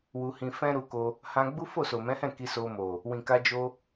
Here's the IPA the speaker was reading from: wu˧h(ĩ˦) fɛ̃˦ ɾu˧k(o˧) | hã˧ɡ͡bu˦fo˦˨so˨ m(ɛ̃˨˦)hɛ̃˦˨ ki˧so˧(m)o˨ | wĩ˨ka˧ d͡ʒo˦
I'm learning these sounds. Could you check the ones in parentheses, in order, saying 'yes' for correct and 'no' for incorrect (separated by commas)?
no, yes, yes, yes